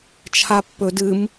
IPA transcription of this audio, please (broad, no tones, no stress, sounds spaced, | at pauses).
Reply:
t͡ʃʰ a pː ɵ d ɨ m